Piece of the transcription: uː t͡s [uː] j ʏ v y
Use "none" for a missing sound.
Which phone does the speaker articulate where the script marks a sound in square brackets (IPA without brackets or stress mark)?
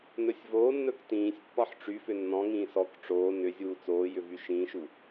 oː